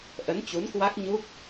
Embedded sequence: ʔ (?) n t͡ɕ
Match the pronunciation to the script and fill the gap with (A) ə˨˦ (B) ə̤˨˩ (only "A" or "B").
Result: A